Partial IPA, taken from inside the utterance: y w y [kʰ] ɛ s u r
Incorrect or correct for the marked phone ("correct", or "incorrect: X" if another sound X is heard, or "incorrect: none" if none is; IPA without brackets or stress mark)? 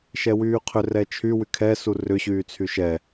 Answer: correct